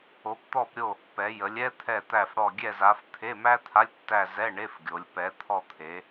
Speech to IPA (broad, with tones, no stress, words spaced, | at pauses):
o˨˦pt̪ɔ˦˨pɾʲo˦˨ | pɛ˨˦jə˨˦lʲ ɛ˥t̪ʰɛ˦˨t̪æ˦˨fɽɔ˦˨ ɡʲɛ˦˨za˨˦f t̪ʰe˧˥˧mæ˥ t̪ʰa˧˥˧lʲtːæ˦˨zɛ˧˥˧ ɳe˧˥˧fɡʲo˨˦lʲ pɛ˨˦t̪ʰɔ˦˨t̪ʰe˨˦